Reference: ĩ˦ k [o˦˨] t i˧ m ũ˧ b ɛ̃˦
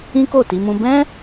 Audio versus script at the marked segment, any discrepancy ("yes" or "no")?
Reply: no